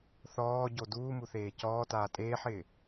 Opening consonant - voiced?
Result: no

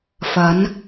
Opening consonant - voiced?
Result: no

